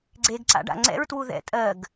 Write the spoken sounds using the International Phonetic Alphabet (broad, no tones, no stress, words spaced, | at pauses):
ɡ͡ǀeɡǀa̰ɖ a̰ŋ͡ǀɛ̰ɹtwu ðɛ̰ tʼɜɡ